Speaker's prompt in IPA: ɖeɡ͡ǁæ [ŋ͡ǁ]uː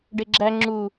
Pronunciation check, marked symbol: correct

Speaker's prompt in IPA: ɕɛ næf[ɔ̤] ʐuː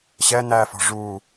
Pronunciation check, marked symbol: correct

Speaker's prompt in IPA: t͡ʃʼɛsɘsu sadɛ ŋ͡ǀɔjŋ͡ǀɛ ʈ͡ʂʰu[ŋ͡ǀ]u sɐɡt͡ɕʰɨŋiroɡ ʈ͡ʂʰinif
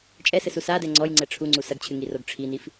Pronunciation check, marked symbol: correct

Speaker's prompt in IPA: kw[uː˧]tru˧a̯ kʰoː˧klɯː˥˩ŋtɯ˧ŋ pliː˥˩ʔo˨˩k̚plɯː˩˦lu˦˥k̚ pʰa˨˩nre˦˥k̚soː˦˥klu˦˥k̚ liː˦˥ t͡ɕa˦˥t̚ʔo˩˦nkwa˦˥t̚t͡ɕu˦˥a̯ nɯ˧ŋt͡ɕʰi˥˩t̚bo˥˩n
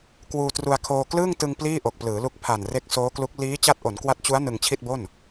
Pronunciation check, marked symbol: correct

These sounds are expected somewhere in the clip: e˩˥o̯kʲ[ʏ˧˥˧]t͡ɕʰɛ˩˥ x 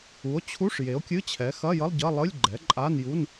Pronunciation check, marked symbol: incorrect: ɨ˧˥˧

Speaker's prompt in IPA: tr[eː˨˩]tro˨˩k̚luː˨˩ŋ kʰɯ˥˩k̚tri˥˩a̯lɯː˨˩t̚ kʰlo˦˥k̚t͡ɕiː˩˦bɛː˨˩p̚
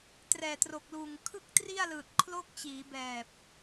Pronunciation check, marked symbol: incorrect: ɛː˨˩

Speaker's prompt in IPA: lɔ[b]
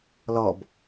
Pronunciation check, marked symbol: correct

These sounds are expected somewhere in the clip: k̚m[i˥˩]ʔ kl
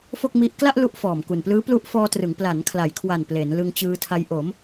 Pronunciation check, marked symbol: incorrect: i˦˥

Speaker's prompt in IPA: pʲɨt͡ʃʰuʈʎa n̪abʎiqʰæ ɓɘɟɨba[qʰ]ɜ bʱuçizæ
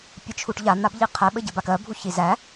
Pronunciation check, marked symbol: incorrect: k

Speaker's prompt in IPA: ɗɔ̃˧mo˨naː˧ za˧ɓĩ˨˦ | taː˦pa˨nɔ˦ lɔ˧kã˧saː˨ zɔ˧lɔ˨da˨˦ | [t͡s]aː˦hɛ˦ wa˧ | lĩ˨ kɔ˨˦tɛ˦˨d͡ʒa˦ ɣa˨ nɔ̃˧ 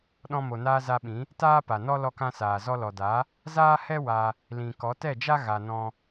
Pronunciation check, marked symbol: incorrect: z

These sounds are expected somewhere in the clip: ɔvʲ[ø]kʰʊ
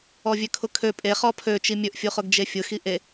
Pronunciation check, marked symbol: correct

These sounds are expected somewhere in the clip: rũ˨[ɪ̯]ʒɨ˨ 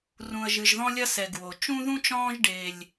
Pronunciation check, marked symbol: incorrect: ə̯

